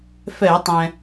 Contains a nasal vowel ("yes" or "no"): yes